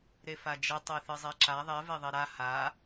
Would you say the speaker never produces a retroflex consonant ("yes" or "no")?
yes